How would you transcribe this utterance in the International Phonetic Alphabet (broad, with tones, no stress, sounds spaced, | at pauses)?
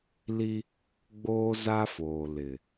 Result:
l i˦ | ɡ͡b oː˦ z a˦ f oː˨ l ɪ˨